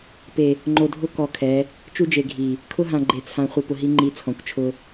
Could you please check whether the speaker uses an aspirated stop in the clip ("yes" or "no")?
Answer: yes